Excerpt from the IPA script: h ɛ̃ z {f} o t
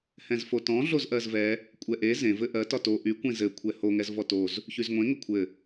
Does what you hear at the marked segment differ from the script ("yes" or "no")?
no